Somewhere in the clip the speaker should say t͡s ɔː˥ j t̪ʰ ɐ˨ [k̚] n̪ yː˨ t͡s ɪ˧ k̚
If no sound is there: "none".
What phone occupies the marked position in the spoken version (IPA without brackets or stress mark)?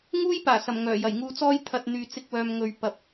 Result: t̚